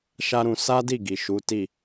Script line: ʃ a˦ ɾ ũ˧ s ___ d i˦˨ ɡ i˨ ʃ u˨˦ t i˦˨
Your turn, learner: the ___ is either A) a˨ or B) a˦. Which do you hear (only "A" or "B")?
B